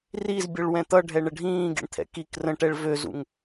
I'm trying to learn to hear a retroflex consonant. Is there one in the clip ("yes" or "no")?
yes